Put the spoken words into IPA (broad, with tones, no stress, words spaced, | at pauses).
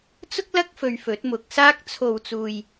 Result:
t͡sʊ˥k̚lɐ˥k̚ fɵ˧ɥfɵ˨˥t̚mʊ˨˥k̚saː˥k̚ t͡sʰo˨wt͡suː˨j